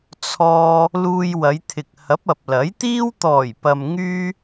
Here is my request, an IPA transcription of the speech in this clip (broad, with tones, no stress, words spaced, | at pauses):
t͡sʰɔː˧ | luː˧jwɐ˨˧jt̪ʰɪ˨k̚ hɐ˨˥p̚ɐ˨p̚lɐ˨˥jt̪iː˥w t̪ɔː˨˩jpɐ˨mŋyː˧